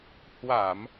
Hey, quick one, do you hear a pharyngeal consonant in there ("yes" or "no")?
no